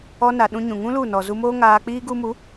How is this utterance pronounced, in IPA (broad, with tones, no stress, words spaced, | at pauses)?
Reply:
ɔ˧na˨ ɗũ˧ɲũ˨ŋũ˦ lu˦˨nɔ˨ zu˧moː˦ŋaː˧k͡piː˦ ɡu˧mu˨˦